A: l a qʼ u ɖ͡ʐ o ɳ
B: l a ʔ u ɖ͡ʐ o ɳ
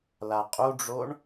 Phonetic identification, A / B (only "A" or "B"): A